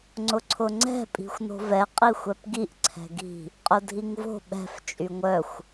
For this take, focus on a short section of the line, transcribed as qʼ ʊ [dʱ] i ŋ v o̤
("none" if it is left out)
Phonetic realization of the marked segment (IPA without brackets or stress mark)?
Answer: dʱ